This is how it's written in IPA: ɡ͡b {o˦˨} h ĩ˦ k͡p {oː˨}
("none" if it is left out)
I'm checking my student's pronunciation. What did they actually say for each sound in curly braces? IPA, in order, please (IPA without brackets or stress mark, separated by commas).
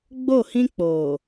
o˦˨, oː˨